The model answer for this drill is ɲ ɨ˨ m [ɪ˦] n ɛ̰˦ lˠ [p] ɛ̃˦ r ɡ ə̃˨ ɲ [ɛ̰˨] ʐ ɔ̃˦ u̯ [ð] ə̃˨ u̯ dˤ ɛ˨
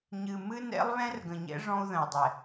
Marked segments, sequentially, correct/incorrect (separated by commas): incorrect, incorrect, incorrect, correct